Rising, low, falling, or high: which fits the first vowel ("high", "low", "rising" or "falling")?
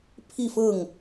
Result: falling